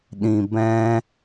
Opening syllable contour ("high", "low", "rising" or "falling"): low